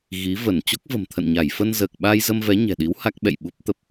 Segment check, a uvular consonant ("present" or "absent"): absent